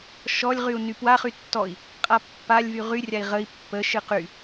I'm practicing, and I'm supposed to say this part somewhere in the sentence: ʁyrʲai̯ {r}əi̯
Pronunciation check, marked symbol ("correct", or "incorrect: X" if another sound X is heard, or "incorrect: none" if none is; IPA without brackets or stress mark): incorrect: ʁ